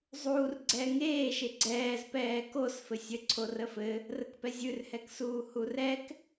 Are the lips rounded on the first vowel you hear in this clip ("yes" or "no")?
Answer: yes